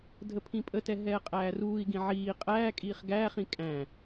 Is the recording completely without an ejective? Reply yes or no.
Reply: no